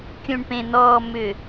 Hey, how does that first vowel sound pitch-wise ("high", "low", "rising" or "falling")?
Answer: low